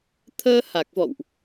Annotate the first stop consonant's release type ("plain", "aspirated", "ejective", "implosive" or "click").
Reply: aspirated